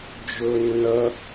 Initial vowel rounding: rounded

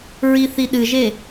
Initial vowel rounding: unrounded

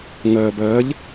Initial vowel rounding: unrounded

